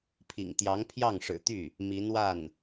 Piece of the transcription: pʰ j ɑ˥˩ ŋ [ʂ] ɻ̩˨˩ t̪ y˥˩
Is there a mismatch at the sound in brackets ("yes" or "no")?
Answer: no